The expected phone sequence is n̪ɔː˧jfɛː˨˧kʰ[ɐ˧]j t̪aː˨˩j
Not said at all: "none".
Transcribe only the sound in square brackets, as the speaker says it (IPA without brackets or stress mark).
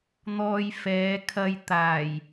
ɐ˧